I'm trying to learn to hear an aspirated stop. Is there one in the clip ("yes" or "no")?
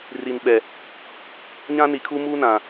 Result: yes